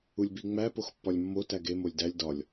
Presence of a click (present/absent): absent